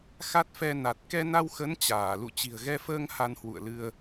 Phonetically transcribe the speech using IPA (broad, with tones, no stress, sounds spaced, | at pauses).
x a˦˥ t̚ f ɛ˧ n a˨˩ t̚ k ɛ˧ n a˧ w x ə˨˦ n t͡ɕ aː˧˩ l ṵ˧˨ t͡ɕ i̤˨˩ ə̯ ɣ ɛ˧ f əː˧ ŋ h a˧ n h w ṵ˧˨ ə̯ l ɨ˧ ə̯